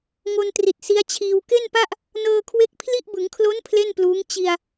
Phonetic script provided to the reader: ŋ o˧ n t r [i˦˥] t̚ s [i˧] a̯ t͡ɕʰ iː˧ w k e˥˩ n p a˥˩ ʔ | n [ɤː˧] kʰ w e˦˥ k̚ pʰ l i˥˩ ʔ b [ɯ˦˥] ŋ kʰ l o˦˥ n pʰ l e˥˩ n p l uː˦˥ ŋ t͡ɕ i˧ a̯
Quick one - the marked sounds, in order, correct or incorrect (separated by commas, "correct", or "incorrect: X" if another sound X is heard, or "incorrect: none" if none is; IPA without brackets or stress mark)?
incorrect: i˨˩, incorrect: i˦˥, correct, incorrect: ɯ˩˦